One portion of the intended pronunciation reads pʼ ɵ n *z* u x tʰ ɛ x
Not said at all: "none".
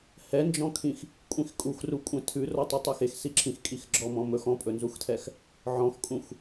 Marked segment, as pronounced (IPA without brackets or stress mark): z